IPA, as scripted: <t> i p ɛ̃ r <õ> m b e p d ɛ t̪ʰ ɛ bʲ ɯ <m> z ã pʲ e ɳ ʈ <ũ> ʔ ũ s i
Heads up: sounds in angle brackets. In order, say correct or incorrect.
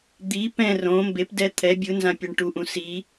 incorrect: d̪, correct, incorrect: n, incorrect: u

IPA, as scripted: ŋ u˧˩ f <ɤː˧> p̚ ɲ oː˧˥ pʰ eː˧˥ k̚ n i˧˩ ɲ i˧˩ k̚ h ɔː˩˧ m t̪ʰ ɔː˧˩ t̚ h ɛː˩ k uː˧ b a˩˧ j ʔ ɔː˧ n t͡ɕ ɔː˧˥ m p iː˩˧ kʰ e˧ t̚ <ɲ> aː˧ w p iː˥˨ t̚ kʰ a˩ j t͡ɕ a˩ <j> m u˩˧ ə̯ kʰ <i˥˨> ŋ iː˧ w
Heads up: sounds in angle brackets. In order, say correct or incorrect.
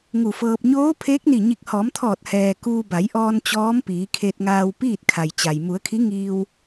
correct, incorrect: ŋ, correct, incorrect: i˧˥

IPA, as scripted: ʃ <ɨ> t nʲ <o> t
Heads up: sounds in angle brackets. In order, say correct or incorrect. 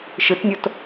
correct, correct

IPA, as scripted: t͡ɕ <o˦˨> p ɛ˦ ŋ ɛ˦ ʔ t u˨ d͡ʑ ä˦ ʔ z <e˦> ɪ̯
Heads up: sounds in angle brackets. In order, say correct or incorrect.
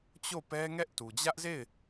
correct, incorrect: e˦˨

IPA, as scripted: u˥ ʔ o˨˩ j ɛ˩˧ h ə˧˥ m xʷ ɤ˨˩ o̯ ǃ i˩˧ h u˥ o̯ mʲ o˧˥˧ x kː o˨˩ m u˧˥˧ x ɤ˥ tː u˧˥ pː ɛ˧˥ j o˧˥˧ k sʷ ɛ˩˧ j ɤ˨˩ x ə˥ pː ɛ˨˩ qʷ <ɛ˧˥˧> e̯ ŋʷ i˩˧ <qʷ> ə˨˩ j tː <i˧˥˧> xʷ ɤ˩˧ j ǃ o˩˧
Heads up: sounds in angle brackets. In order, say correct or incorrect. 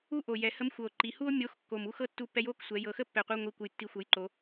incorrect: ə˧˥˧, incorrect: kʷ, incorrect: i˨˩

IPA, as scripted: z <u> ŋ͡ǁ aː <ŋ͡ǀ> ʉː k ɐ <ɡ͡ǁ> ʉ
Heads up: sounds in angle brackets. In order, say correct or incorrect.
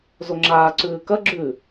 incorrect: o, incorrect: ǀ, correct

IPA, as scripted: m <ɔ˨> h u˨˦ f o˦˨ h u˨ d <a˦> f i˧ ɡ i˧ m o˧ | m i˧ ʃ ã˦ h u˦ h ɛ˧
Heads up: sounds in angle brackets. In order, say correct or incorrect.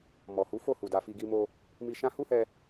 correct, incorrect: a˧

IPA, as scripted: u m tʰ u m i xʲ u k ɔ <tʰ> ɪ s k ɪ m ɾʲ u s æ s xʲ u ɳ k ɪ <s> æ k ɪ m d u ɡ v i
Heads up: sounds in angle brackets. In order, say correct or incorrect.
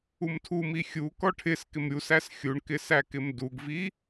incorrect: ʈʰ, correct

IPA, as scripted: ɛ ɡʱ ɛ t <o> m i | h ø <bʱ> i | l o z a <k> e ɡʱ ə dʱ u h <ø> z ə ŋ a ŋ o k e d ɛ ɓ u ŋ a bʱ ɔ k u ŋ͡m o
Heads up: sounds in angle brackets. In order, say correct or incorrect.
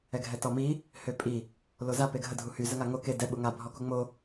incorrect: ɔ, incorrect: pʼ, incorrect: p, incorrect: y

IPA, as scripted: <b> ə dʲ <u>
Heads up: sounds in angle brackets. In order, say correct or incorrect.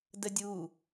incorrect: d, correct

